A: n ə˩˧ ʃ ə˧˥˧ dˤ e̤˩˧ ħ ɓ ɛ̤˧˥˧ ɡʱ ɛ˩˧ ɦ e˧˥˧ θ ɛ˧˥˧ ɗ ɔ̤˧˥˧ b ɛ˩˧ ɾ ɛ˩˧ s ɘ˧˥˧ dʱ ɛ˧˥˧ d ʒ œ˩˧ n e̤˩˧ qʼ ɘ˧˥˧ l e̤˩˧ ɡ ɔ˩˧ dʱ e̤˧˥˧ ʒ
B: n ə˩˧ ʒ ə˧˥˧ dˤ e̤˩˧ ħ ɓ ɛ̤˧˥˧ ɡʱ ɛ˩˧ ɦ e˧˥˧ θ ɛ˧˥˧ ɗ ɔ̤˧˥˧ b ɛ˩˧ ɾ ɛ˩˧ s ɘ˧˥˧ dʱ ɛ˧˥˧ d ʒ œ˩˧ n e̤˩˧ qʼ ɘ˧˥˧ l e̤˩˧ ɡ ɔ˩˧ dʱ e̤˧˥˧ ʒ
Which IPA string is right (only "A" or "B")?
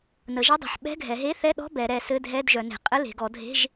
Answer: B